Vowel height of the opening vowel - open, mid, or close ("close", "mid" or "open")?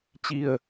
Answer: close